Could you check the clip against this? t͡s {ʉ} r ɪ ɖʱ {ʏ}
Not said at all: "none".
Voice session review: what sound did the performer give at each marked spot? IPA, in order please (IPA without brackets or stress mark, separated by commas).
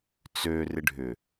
ø, ʏ